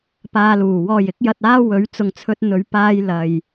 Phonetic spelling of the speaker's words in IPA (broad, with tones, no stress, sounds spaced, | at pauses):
p aː˧ l uː˨˩ w ɔː˨˩ j ɪ˧ k̚ j ɐ˨ t̚ aː˧ w ɵ˨˥ ɥ t͡s ʊ˨ ŋ t͡sʰ ɵ˧ t̚ n̪ ɵ˨˧ ɥ p aː˧ j l ɐ˨ j